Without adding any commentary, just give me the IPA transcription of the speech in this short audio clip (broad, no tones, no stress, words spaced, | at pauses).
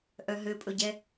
ʔœɦøpʼɵɟɛ